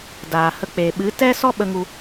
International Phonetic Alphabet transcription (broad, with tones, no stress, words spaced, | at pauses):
daː˨hə˧k͡pe˨ ɓɨ˨˦tɛ˦ sɔ˦ ɓə˧ŋu˧